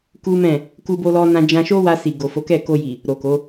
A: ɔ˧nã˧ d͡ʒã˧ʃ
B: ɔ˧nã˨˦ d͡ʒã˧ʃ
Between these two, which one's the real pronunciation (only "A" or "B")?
A